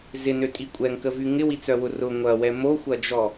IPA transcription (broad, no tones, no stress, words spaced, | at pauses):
zɪnøtʼi kʷʼɛŋkəvy ŋɪwit͡sœwʊ rʊ ŋʷɐwɛ moxʷɐd͡ʒɔ